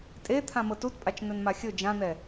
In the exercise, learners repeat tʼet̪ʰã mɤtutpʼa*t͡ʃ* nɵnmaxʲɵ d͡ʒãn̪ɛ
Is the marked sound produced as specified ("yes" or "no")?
yes